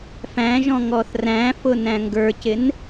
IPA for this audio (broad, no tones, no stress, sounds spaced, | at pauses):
f æ̃ ʒ ɔ̃ ŋ ɔ θ r æ̃ f ʊ n æ̃ ŋ ɡ ə˞ c ɪ n